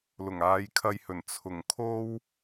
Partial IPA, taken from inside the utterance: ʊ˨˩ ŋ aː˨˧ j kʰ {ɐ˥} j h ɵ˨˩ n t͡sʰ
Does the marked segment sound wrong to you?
yes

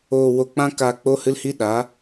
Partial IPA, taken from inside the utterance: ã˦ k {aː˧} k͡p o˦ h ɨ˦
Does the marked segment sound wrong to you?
no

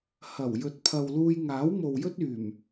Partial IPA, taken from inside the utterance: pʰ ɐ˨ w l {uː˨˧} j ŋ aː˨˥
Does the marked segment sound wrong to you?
yes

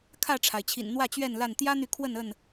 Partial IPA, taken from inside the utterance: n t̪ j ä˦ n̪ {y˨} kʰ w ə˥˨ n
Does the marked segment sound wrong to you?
no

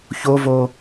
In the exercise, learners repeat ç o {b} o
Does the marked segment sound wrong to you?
yes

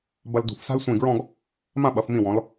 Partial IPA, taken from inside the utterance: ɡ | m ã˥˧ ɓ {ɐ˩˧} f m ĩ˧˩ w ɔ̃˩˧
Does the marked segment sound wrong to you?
no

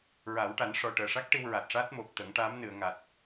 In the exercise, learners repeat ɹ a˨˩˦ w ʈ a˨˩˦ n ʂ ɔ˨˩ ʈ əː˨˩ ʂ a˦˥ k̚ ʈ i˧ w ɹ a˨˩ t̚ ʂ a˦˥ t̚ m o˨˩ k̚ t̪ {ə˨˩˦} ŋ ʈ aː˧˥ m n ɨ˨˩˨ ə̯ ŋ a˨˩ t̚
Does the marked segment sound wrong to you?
no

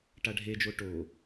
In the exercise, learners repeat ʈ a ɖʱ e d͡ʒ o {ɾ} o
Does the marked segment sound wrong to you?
yes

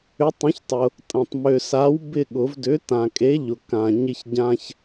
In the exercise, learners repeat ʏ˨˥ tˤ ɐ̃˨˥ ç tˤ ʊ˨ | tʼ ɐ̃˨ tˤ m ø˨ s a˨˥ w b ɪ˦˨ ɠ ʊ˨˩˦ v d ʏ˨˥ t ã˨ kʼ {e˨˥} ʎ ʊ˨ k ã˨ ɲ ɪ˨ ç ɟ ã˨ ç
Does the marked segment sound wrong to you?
no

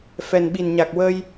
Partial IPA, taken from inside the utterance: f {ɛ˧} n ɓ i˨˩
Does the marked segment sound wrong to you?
yes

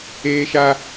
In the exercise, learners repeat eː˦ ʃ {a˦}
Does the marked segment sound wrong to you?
no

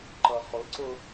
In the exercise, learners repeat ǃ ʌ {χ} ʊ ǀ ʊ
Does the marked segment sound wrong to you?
no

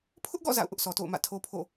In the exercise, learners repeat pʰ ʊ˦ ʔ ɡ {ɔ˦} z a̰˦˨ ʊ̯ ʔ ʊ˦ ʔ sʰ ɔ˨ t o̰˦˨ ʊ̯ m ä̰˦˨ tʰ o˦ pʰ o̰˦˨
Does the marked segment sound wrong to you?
yes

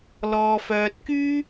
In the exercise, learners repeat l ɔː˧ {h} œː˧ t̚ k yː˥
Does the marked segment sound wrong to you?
yes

